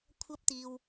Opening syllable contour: high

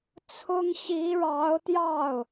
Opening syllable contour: high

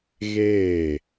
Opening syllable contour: falling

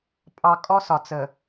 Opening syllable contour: low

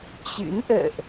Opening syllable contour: rising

